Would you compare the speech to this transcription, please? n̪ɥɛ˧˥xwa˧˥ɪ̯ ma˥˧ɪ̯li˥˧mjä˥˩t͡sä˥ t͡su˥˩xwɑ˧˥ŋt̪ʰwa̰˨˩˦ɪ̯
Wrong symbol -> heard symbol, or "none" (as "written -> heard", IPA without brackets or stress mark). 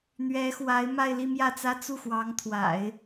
none